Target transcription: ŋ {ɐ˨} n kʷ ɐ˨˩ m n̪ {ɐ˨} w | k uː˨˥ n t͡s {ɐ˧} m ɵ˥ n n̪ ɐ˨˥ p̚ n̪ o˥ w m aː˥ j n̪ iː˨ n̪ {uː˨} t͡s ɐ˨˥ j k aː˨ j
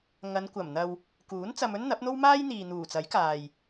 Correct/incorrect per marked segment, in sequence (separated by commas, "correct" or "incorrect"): incorrect, correct, correct, incorrect